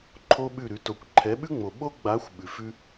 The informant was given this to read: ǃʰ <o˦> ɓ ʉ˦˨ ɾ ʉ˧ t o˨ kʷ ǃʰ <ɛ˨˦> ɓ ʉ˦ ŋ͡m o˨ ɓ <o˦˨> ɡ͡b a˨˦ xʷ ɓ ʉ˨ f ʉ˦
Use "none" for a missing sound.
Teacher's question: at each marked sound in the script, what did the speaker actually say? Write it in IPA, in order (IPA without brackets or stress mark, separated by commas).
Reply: o˦, ɛ˨˦, o˦